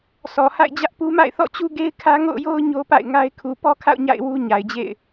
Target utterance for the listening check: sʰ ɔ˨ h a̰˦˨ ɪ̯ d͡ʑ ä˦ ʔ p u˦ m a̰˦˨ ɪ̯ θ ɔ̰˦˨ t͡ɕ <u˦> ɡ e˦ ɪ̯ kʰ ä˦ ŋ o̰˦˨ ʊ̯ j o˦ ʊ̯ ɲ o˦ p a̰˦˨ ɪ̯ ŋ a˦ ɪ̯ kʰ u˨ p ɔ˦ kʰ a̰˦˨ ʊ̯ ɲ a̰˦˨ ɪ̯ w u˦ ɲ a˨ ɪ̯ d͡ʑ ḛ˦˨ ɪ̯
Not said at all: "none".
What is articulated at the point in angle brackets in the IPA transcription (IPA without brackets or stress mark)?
u˦